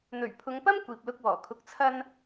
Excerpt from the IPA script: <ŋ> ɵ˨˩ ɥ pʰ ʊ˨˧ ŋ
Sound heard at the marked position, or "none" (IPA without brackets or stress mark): n̪